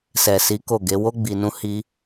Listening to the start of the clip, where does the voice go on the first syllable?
low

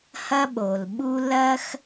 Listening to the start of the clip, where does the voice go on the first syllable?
high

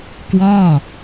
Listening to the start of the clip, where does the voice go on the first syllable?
falling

